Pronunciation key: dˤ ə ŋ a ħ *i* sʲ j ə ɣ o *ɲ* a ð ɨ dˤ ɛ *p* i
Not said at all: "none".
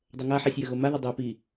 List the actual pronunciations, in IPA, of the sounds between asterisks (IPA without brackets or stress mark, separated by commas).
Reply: i, m, p